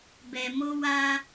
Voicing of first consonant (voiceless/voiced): voiced